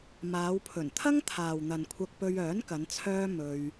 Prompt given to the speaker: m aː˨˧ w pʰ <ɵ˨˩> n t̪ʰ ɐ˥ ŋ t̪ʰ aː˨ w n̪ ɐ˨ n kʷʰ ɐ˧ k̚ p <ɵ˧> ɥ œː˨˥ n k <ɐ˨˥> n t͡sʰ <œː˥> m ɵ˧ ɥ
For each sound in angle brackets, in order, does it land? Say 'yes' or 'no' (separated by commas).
yes, yes, no, yes